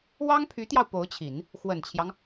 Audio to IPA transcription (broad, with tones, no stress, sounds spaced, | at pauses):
w ɑ˥ ŋ pʰ y˧˥ t̪ j ɑ˧ ʊ̯ p o˧˥ ʊ̯ t͡ɕʰ i˨˩˦ n | x w ə˨˩ n t͡ɕʰ j ɑ˦ ŋ